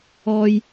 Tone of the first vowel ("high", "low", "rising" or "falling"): high